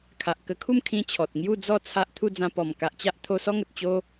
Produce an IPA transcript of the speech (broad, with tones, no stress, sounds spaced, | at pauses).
kʰ a˨ ʔ k ə˧ kʰ u˥˧ m kʰ ĩ˦ t͡ɕʰ ɔ˨ t̚ ŋ j u˥˧ d͡z ɔ˥˧ t͡sʰ a˦ ʔ t̪ʰ u˥˧ d͡z ã˧ p ɔ˨˩ m k a˨ ʔ t͡ɕ a˦ ʔ t̪ʰ o˧ s ɔ˦ ŋ ə˨ t̚ t͡ɕ o˦